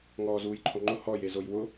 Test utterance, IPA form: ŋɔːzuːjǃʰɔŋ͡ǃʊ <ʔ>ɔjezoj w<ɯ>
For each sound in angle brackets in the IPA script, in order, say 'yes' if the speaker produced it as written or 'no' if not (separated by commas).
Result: no, no